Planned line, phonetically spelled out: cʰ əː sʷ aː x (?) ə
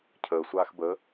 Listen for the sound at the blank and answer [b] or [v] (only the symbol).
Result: b